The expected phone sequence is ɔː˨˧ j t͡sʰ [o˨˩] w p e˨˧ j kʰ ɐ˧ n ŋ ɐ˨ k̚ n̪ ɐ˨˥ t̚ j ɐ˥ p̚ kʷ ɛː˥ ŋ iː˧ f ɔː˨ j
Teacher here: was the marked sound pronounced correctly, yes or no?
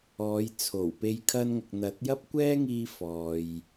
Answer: yes